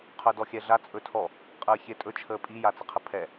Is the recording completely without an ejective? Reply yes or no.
no